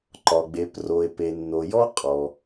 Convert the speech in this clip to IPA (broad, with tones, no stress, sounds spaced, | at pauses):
ǃ ɒ˩ ɡ͡b e˩˧ p r o˩ e̯ p e˩ nː o˩ j ɔ˦ qʼ ɔ˩